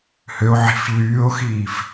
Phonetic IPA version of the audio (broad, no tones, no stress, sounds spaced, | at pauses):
h ø o̯ ʕ i̤ f ʎ yː o̯ x iː f